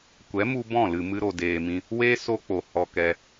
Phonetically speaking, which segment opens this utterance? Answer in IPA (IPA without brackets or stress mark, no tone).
kʷ